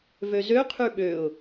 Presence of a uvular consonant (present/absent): present